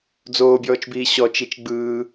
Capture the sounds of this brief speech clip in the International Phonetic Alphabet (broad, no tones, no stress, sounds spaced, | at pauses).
d͡z oː bʲ ɔː t͡ʃ b iː ɕ ɔ t͡ʃ i t͡ʃ ɡ͡b ɯː